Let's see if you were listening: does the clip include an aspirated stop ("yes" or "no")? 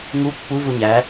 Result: no